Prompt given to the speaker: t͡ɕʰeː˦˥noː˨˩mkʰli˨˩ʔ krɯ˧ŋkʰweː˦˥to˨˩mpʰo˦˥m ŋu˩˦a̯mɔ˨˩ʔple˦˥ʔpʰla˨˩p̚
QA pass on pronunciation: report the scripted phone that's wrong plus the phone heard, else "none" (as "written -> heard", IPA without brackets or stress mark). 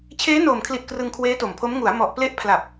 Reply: none